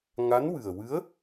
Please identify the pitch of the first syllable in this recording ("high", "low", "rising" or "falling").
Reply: rising